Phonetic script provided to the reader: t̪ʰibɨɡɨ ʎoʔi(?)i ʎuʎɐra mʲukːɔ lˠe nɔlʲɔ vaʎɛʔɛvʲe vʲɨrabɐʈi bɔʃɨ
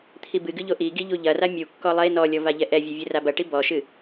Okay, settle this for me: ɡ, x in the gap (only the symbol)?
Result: ɡ